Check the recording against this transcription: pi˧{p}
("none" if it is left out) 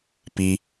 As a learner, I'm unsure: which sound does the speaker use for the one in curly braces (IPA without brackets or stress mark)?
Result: none